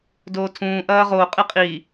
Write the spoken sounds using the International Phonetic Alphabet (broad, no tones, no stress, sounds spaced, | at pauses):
d oː tʰ ũː ʔ ɐː ʁ o qʼ ɨ qʼ i